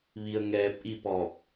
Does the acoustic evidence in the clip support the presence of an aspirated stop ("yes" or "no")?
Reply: no